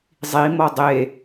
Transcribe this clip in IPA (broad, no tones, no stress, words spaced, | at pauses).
zˤimɔ dˤe